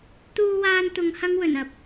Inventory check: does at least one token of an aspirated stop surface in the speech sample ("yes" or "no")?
no